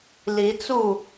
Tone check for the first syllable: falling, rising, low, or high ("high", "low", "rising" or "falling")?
rising